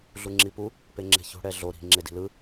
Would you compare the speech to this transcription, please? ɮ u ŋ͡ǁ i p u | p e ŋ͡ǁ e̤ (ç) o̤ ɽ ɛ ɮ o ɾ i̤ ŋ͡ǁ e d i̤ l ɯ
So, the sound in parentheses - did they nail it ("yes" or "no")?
yes